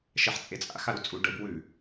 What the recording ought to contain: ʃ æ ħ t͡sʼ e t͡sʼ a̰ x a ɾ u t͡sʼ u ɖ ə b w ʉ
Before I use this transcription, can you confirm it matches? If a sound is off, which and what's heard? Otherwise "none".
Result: æ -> ɛ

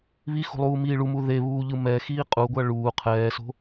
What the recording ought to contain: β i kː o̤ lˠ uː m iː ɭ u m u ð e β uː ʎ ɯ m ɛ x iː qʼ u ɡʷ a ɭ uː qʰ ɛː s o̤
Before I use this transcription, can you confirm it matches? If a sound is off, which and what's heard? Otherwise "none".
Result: kː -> x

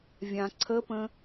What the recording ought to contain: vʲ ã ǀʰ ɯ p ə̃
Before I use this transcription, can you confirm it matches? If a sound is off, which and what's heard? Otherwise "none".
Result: ɯ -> ə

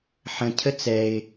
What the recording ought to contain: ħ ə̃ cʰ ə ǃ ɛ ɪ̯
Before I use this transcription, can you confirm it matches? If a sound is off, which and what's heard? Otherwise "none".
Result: ǃ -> t͡s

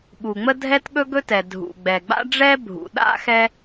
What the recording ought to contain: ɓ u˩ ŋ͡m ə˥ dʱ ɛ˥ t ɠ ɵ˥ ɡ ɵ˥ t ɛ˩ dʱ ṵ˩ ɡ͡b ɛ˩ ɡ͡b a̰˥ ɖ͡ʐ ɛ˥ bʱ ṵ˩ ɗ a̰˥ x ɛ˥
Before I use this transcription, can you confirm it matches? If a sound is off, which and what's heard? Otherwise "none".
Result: none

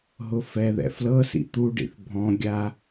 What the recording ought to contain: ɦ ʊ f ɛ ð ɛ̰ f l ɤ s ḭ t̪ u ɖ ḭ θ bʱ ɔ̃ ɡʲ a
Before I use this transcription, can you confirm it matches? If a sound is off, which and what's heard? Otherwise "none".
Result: none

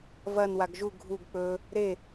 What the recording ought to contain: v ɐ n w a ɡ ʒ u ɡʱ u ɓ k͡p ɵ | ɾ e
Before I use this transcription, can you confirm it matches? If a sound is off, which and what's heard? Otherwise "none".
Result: ɓ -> ɡ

